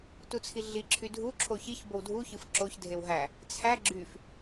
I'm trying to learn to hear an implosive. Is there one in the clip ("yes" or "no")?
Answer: no